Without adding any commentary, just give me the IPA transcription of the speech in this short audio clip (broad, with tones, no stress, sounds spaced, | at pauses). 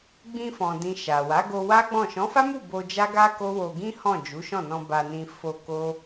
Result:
ɡ͡b ĩ˧ f ɔ̃˨ d ĩ˨ ʃ a˨ w a˨˦ ɡ o˧ w a˦ ɡ͡b ɔ̃˦˨ ʃ ɔ̃˨˦ f a˦ m u˦˨ b o˧ d͡ʒ a˦ ɡ a˦ k o˦ w o˧ ɡ ĩ˦ h ɔ̃˦˨ d͡ʒ u˨˦ ʃ ɔ̃˦˨ n ɔ̃˧ b a˧ n ĩ˧ f o˧ k o˦